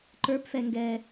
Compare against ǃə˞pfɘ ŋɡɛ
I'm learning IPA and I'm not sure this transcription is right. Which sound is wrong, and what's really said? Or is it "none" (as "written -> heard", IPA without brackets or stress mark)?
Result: ɘ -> ɛ